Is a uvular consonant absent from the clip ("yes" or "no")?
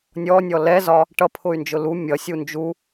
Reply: yes